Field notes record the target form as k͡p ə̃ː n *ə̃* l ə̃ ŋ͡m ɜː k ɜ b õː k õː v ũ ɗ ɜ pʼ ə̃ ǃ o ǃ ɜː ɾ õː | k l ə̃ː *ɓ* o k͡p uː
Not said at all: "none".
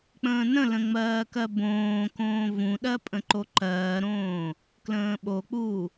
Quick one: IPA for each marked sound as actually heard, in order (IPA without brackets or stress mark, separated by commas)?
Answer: ə̃, ɓ